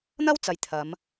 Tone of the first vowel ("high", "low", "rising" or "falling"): high